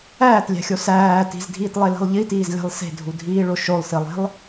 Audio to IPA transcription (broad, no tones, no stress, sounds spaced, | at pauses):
æː t lʲ æ̤ xʲ o s æː t i̤ z dʱ iː t lˠ e l i̤ lˠ ʎ i t iː z lʲ æ̤ lˠ s e̤ dʱ u dʱ iː ɭ o ʃ o lˠ s i lˠ e̤ lˠ